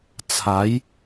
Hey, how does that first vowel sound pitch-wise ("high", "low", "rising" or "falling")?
rising